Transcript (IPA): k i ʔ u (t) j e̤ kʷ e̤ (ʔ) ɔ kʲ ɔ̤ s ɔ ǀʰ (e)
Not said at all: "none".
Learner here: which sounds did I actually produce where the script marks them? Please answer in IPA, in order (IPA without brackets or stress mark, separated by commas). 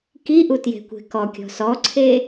t, k, e